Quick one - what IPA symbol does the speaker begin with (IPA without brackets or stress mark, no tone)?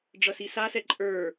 ɖ͡ʐ